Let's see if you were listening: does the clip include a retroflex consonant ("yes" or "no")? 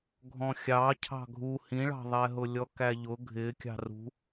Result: yes